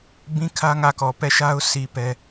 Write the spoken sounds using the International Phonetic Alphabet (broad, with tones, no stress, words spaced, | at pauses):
bĩ˦kʰä˦ ŋä˦˨kɔ˨ pɛ˦˨ʃa˦ʊ̯si˨ pɛ˦